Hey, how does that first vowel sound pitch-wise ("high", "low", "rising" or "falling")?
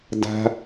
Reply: high